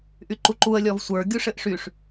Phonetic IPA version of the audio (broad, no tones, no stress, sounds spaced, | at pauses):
ʔ y ǃ u ǃ u ə̯ lʲ ɔ v sʷ ə˞ ɡʲ u ʂ ɘ ʔ ʂ y ʂ